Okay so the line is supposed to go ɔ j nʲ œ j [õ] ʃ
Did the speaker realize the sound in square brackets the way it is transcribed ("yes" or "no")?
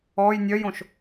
yes